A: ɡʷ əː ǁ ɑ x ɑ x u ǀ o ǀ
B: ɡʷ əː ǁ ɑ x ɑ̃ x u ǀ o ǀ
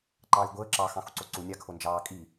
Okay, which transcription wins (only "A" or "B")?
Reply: B